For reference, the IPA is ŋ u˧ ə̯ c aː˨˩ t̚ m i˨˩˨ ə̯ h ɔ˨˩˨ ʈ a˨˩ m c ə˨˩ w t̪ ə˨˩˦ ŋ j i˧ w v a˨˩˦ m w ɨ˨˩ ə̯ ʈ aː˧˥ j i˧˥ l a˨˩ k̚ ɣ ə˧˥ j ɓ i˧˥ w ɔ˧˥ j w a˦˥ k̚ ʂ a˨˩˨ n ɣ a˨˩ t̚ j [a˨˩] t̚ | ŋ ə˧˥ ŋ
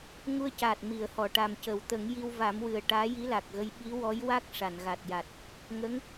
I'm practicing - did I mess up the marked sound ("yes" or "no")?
no